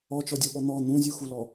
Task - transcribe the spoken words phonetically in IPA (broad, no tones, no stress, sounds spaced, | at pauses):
ɔ t͡ʃ ɔ dʲ ɤ ɓ ɔ n̪ ɔ n̪ ũ zʲ u x u l ɔ